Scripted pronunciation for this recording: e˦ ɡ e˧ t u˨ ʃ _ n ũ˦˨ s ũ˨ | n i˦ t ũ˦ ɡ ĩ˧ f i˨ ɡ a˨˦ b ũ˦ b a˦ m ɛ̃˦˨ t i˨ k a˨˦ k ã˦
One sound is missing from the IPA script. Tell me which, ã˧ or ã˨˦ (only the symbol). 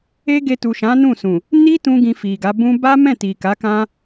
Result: ã˨˦